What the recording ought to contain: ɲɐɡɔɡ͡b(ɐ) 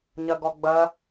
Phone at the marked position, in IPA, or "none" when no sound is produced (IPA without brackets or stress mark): ɐ